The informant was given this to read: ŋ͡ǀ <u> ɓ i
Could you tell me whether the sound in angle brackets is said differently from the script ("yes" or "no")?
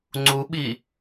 no